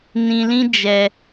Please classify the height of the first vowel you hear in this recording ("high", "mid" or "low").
high